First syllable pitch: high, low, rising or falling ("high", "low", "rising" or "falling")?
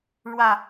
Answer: low